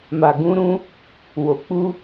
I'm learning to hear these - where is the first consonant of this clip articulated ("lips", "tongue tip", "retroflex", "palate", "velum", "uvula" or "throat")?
lips